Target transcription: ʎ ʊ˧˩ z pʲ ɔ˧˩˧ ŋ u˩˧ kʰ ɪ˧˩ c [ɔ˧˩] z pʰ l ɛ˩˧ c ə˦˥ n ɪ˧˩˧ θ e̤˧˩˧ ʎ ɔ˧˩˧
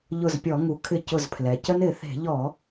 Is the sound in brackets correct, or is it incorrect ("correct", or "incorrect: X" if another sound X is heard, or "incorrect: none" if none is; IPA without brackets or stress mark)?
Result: incorrect: ʊ˧˩